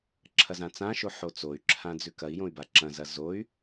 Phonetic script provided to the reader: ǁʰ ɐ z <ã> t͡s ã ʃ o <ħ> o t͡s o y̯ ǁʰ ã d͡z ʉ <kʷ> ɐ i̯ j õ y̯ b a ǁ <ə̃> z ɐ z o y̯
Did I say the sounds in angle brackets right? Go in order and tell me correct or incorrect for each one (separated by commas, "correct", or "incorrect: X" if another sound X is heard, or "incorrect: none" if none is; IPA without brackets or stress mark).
correct, correct, incorrect: k, incorrect: ɐ̃